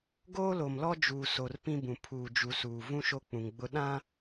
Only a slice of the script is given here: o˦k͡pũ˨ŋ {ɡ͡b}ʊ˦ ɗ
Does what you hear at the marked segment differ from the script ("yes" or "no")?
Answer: no